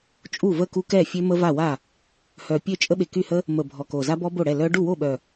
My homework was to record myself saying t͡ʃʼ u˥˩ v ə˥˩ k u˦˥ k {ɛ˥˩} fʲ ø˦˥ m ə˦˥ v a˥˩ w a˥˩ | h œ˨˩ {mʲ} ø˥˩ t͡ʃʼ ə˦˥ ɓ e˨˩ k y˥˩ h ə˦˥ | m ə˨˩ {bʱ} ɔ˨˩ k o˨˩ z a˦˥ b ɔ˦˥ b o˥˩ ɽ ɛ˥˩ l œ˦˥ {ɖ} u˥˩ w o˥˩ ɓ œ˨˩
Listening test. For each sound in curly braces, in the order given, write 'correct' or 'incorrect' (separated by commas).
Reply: correct, incorrect, correct, correct